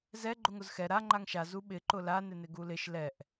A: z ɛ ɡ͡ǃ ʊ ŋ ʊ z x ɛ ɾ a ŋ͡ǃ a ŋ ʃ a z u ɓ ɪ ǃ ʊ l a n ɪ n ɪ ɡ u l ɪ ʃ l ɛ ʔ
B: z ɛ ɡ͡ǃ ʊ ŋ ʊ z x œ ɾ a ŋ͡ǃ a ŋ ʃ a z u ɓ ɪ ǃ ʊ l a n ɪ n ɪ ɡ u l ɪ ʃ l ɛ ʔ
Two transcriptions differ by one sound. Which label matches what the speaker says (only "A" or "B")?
A